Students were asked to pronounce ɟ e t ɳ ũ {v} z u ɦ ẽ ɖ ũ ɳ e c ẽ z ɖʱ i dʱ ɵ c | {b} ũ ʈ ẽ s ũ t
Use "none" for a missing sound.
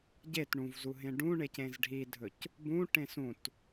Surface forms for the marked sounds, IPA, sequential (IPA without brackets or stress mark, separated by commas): v, b